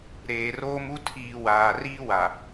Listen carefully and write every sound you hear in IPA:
ɾ eː˨ r oː˦ m u˦ tʰ iː˨ w aː˨ r iː˦ w a˨

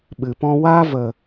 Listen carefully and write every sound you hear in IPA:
ɓ ɨ˨ p ɔ̃˦ w a˦ v ə˨

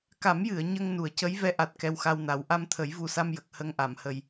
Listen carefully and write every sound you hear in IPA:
k a˨˩˦ m j ɨ˨˩˨ ə̯ ɲ ə˧ ŋ n u˨˩˨ ə̯ c ə˧˥ j v ɛ˧˥ ʔ a˨˩ t̚ k ɛ˧ w x a˧ w n a˨˩˦ w ʔ a˧ m t̪ʰ ə˨˩˦ j v u˨˩ s a˧ m j ə˨˩ k̚ h ə˧ ŋ ʔ a˨˩˨ m h ə˨˩ j

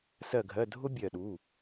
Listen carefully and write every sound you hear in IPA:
s ɜ˧˩ ɡʱ ɜ˩˧˩ dʱ ʊ˦˥ bʲ ɜ˧˩ ɗ u˩˧˩

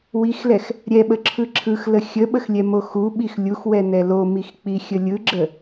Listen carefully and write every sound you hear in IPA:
w i x l ɛ x | ɾʲ ɛ ɓ ə ǁʰ ɯ ǁʰ ɯ x l ə xʲ ə ɓ ə x lʲ ɛ m o x u ɓ i x lʲ u x w ɛ n ɛ l o m i x k͡p i xʲ ə lʲ ɯ ɡ͡ǁ ə

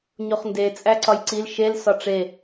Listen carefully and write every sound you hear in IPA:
ɲ o χ n d e t͡sʼ æ ǀ ɒ j ǀ i l ʃ e l s ɒ ʈ͡ʂ e

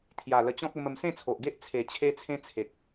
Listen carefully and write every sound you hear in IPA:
t̪ʰ j a˨˩ l ə˧ t͡ɕ ɔ̃˦ k̚ ə˧ m ə˧ m s ẽ˥˧ t͡sʰ o˨ ʔ ɡ e˦ ʔ t͡sʰ e˨˩ t͡ɕʰ e˧ t͡sʰ ẽ˦ t͡sʰ e˨ k̚

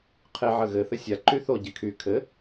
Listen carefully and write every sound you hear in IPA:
qʰ ɪ ʕ ə ɣ ɘ θ ɘ sʲ a ǃ y θ o ɟ ɪ kʰ y kʰ ɘ

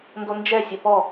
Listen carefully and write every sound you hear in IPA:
n d o n d͡ʒ ɛ sʲ ɐ p ɔ

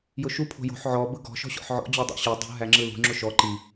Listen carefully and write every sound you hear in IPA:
j ʊ ʃ u pʰ o̤ j o̤ ħ ʕ ɔ b ɯ ɡ ɔ̤ ʃ ɔ̤ ɕ ɔ̰ ħ ʕ ɔ̰ d͡ʑ ɔ dˤ o̰ ɕ ɯ dˤ ṳ ɦ æ ŋ͡ǁ ɯ l ṳ ŋ͡ǁ ʊ ʃ ɔ ǃ i

